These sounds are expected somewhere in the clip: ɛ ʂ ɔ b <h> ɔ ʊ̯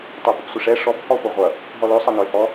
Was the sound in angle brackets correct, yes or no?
yes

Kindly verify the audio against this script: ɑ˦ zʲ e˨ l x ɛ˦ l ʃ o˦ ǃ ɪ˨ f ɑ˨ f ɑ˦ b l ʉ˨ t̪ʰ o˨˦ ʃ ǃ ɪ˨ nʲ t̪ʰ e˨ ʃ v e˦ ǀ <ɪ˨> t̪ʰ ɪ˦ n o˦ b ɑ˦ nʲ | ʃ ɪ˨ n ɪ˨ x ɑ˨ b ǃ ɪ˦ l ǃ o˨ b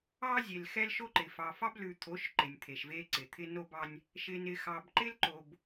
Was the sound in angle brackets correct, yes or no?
yes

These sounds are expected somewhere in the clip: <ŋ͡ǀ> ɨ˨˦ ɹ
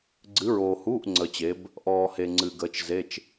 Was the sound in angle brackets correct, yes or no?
no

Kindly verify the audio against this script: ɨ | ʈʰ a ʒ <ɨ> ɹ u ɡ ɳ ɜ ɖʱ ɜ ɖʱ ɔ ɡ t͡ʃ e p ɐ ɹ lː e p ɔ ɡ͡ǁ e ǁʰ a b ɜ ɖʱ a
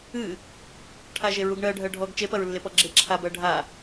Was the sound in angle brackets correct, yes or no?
no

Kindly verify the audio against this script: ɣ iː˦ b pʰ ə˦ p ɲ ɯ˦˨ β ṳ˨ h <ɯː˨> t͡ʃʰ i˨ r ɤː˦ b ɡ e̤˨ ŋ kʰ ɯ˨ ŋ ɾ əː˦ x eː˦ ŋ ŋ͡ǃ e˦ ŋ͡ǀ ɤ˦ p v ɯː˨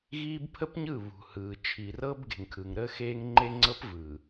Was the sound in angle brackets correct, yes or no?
yes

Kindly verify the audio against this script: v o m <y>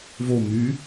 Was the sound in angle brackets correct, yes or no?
yes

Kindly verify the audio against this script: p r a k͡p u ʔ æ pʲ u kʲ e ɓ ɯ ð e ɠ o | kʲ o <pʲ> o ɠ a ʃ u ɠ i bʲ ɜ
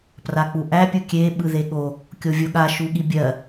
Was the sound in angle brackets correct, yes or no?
no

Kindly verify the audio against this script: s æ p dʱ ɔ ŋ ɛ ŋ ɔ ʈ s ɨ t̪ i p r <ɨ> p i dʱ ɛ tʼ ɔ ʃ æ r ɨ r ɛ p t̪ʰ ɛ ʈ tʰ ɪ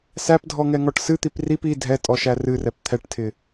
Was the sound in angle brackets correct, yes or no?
no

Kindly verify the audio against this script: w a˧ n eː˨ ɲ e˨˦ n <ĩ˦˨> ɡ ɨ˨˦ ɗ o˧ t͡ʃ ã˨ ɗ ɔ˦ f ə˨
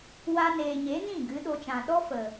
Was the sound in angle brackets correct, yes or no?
yes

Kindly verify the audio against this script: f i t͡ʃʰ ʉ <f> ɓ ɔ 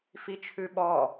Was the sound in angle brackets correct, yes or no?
no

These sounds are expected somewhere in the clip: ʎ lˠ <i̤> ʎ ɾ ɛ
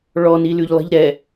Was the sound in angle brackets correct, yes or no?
yes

